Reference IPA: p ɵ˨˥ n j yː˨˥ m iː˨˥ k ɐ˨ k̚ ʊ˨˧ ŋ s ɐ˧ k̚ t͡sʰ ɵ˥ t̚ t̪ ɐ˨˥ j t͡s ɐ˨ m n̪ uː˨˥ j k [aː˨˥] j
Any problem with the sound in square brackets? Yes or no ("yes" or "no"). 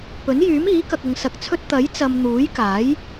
no